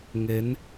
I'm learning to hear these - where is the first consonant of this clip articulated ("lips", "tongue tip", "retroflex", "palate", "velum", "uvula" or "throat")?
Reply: velum